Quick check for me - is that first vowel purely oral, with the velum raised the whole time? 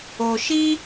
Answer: yes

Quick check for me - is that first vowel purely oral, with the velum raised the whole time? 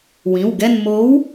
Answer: no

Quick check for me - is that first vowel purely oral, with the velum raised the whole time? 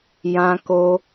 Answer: no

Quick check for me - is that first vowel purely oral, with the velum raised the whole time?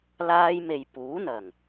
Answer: yes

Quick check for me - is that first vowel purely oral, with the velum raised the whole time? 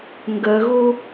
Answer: yes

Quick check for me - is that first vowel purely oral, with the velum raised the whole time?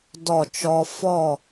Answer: yes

